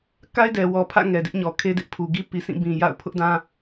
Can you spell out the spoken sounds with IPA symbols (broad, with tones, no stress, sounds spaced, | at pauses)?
k a˦ ɪ̯ d ɛ˨ w ɔ˨ pʰ ä̰˦˨ ŋ ɛ˨ d ɪ˦ ʔ ɲ ɔ˨ kʰ e˦ d ɪ˦ ʔ pʰ u˨ ɡ i˦ p i˨ s ĩ˦˨ b ĩ˨ j a̰˦˨ ʊ̯ pʰ ʊ˦ ʔ d ã˦